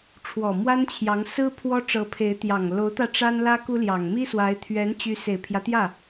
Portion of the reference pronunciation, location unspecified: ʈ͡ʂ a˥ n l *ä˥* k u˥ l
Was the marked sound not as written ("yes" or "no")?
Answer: no